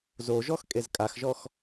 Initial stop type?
ejective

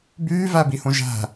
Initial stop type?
plain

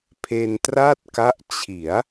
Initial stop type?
aspirated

